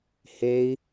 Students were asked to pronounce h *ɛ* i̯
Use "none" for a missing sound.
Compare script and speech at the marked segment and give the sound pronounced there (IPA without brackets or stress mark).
e